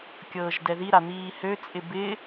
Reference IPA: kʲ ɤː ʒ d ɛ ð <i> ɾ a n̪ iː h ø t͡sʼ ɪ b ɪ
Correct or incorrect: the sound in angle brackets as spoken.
correct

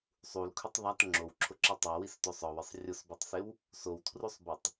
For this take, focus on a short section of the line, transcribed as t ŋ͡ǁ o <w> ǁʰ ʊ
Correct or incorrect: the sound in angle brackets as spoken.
correct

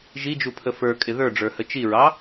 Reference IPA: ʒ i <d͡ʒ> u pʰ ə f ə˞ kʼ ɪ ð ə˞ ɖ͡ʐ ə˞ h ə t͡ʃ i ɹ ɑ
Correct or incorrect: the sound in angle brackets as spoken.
correct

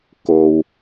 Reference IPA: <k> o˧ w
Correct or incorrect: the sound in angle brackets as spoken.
correct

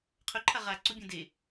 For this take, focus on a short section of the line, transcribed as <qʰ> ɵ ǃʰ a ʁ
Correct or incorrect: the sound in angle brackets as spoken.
correct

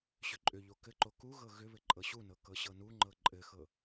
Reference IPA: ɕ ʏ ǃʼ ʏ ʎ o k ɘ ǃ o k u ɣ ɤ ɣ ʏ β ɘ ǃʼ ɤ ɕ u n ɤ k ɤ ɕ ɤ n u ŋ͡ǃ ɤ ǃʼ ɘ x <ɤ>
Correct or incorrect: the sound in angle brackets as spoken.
correct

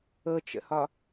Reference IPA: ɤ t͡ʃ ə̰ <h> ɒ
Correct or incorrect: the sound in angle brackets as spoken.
correct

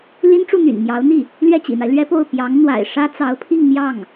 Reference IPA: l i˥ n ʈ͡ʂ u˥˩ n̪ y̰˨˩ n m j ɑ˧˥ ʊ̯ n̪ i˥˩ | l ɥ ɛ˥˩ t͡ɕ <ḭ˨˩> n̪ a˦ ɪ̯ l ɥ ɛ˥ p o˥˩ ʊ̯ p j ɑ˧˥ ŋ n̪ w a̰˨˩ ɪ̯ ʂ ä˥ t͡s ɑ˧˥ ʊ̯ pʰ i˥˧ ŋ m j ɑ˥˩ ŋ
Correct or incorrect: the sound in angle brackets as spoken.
correct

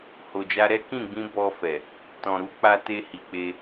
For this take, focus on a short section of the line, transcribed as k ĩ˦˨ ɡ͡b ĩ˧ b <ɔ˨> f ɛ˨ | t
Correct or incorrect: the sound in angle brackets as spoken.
incorrect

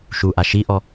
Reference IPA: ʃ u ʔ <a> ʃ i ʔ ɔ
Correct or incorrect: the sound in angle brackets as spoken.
correct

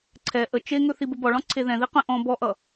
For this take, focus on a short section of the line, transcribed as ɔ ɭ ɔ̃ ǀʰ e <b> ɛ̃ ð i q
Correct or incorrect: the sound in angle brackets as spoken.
incorrect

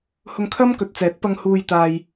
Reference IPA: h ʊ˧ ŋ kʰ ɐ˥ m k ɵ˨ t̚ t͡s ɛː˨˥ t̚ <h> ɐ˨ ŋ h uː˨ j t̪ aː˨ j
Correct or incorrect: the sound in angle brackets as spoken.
incorrect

